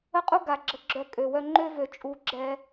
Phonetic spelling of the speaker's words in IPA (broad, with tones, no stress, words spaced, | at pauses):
ə˦qʼu˦ ɡa˨ ɡ͡ǁə˨˦ ɡ͡ǁœ˦˨ kʼø˨wœ˦ ŋ͡ǃø˦vø˨ t͡ʃʼu˨˦ ɡ͡ǁɛ˦